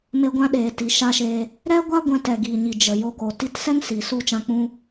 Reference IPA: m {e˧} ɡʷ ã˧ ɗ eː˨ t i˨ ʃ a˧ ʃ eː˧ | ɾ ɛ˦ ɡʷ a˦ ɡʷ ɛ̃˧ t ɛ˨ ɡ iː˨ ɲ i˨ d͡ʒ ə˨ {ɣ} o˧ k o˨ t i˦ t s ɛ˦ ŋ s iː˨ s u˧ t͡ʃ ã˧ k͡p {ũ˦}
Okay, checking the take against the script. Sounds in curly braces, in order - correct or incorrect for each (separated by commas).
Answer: correct, incorrect, correct